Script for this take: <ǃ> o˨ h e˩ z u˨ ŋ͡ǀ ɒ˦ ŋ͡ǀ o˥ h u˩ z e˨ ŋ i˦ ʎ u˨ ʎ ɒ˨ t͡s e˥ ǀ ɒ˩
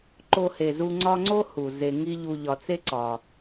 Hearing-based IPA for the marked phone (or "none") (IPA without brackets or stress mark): ǃ